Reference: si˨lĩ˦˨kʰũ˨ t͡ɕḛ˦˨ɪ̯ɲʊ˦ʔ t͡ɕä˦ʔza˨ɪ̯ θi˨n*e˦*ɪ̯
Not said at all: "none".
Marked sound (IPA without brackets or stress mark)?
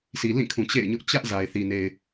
e˨